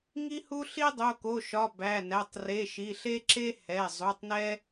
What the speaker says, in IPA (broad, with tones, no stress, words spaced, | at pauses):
ŋi˦hu˦ ɬi˦dˤo˩˧˩ko˩˧˩ʃɒ˩˧˩ bæ˩˧˩næ˩˧˩tˤ re˩˧˩ʃi˩˧˩ɬe˦ ǁe˦ hɛ˩˧˩ zˤu˩˧˩tˤnɛ˦